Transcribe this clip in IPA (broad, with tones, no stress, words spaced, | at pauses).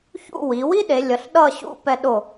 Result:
çṵ˥˧ wi˩˧wi˥ɗe˩˧lʲʌ˩˧ɬ ɗʌ˥˧ɕṵ˥˧pɛ˧ ɗo˧˩